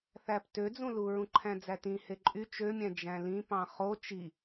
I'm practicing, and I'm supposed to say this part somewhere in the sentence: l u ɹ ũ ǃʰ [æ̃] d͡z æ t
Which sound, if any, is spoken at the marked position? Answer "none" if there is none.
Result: æ̃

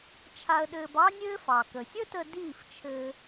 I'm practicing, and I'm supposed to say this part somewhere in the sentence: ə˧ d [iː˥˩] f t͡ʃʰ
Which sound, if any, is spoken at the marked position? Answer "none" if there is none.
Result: iː˥˩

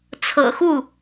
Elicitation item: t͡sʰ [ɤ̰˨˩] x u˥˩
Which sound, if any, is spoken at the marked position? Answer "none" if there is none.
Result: ɤ̰˨˩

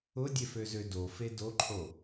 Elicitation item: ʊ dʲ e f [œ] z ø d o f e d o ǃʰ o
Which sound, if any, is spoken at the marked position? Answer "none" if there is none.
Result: ø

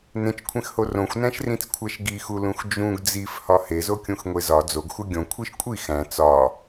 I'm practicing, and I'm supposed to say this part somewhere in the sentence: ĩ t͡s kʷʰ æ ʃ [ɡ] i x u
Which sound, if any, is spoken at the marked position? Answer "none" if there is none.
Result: ɡ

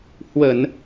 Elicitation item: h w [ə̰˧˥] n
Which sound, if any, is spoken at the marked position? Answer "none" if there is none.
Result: ə˧˩˨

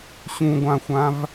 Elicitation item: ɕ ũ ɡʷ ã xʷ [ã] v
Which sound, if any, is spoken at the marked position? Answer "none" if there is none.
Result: ã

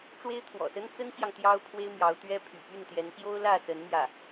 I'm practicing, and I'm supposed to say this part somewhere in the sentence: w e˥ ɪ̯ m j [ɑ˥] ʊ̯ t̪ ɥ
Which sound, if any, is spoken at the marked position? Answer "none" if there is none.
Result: ɑ˧˥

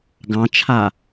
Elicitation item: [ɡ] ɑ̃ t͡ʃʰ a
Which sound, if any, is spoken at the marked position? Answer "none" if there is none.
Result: ɡ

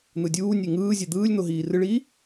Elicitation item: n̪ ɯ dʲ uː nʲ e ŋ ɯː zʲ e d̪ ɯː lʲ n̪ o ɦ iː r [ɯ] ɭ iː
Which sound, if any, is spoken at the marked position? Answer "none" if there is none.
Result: ɯ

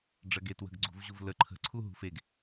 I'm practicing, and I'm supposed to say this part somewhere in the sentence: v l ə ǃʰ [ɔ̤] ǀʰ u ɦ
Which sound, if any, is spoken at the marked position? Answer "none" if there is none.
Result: ə̤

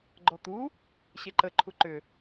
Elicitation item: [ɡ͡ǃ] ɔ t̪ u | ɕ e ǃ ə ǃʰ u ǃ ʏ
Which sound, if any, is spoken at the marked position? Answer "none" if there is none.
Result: ɡ͡ǃ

